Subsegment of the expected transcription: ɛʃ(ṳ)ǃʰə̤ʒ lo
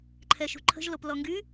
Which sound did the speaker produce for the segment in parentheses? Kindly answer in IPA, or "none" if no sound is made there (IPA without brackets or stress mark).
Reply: ṳ